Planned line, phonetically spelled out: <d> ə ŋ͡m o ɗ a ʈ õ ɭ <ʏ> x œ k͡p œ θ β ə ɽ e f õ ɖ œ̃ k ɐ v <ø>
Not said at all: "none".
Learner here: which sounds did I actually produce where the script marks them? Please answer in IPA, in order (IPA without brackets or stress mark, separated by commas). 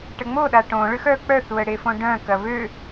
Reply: ʈ, ʏ, ø